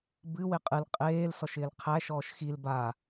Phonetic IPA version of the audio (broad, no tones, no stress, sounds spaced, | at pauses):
b ɨ w ɪ qʼ ɨ l qʼ eː l s ɔ ʃ ɪː l qʰ æ ʃ ɔː ʃ x i l b a